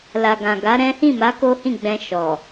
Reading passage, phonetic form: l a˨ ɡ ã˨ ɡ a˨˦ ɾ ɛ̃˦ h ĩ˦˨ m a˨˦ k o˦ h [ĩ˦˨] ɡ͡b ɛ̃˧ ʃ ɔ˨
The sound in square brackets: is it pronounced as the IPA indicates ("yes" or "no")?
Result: yes